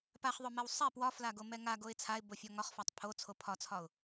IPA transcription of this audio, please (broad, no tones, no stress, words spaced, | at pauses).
paχðˤomɛw sˤɛ pwɒflaɡomɛ ŋaɡoɪ̯ t͡sʰaɪ̯bofʲɒ ŋɒχfɒtˤ pʰot͡sʰo pʰɒt͡sʰɒʊ̯